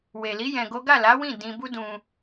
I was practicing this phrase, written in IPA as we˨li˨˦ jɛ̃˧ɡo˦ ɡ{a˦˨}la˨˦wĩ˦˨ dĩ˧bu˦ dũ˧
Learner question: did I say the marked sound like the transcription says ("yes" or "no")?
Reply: yes